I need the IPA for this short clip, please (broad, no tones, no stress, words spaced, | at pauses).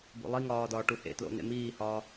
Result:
bo̰lˠiŋɒː dɒːʈuhḛtlo̰ nḛmiːhɒː